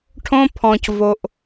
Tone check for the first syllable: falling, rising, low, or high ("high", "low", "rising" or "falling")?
high